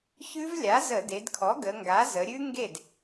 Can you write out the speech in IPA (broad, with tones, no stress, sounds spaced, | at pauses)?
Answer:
ç ʉ˦˥ v lʲ a˩˥ z ə˧˩˧ d e˩˧ d kʰ ɔ˩˥ ɡ ə˩˧ ŋ ɡ a˩˥ z ə˩˧ ɾʲ ʉ˦˥ ŋ ɡ e˥˩ d